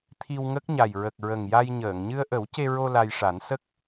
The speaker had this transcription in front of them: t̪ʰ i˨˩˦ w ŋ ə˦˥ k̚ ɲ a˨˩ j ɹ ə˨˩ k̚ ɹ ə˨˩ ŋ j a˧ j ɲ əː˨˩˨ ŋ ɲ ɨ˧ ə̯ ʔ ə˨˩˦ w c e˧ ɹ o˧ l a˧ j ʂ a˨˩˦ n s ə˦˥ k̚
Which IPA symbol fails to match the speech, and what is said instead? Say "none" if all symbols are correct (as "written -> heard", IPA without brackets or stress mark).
i˨˩˦ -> i˧